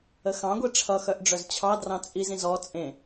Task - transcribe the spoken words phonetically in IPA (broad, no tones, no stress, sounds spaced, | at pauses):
ə x ɑ̃ ɡʷ i ʈ͡ʂʰ ʌ x œ ʔ ɖ͡ʐ œ z t͡ɕʰ ɑ d r ɑ̃ t͡sʼ i z ĩ z ɔ t͡sʼ ẽ